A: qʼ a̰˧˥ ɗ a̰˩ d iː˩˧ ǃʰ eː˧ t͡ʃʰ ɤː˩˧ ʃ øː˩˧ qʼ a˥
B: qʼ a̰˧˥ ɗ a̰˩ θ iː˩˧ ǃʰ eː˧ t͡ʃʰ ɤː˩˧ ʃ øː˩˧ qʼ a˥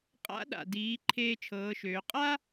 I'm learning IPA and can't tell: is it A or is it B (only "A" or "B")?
A